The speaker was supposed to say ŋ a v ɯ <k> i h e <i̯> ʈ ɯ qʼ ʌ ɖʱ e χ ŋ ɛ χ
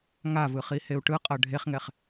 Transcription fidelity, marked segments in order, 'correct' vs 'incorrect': incorrect: χ, incorrect: u̯

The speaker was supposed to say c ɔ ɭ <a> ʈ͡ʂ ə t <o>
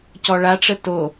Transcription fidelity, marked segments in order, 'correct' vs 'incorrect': correct, correct

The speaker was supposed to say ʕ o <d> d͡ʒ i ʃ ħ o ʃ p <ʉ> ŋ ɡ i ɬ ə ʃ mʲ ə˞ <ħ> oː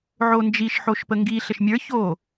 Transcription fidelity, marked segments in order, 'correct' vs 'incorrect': incorrect: n, incorrect: ə, incorrect: ç

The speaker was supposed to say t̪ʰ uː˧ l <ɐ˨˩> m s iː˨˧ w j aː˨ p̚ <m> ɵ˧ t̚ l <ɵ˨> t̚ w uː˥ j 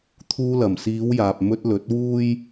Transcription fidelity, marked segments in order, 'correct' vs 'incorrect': correct, correct, incorrect: ɵ˨˥

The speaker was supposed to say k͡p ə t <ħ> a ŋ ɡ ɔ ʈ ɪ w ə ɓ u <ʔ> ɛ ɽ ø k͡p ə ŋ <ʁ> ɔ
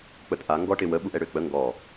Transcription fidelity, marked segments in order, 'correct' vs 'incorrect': incorrect: ʔ, correct, incorrect: ɡ

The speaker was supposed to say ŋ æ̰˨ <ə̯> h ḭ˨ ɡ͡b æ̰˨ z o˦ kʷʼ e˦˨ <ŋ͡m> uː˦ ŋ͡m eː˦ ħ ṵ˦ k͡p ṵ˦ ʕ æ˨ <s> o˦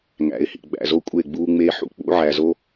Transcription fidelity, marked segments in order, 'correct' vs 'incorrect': incorrect: ɪ̯, incorrect: ɡ͡b, incorrect: z

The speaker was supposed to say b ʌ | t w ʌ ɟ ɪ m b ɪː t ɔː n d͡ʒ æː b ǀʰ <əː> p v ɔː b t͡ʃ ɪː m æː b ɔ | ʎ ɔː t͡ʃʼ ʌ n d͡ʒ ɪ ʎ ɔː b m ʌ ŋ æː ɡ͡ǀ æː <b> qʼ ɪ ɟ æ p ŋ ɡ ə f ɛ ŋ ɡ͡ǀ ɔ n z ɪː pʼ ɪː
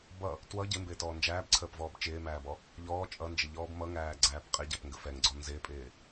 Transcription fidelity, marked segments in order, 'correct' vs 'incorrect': correct, incorrect: p

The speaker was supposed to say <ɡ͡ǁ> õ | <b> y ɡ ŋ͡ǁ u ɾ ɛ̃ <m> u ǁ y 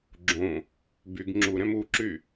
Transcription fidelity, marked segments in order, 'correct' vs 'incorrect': correct, correct, correct

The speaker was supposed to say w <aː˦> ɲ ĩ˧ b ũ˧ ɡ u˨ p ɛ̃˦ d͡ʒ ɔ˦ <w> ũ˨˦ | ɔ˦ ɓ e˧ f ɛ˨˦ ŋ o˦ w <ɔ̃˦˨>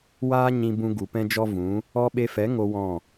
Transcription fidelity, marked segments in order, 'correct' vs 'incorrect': correct, incorrect: v, correct

